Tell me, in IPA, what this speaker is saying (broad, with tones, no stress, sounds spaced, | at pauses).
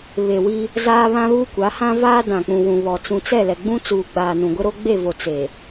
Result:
β e˨ w i˦ | z aː˦ β ã˦ β uː˦ kʷ a˨˦ h ã˦ v aː˦ d ã˨ k͡p ũ˨ w ũ˨ β ɔ˨ t͡s ũ˨ t͡s ɛ˦˨ l ɛ˨ ɡ͡b ũ˦ t͡s uː˨ ɡ͡b aː˨ n ũ˨ ɡʷ e˦ ɾ o˦ ɡ͡b e˦˨ v o˨ t͡s e˨